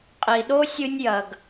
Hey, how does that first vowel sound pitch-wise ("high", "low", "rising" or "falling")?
low